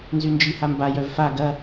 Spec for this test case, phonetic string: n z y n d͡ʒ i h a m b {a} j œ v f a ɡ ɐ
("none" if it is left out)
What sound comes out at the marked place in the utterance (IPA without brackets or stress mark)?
a